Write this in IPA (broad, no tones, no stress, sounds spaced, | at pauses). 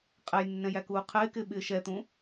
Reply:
qʼ ɛ j nː ɛ̃ j æ k uː qʰ ɪː k ɪː ɓ ɪː ʃ ɛ t̪ ũ